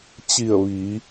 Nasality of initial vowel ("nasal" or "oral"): oral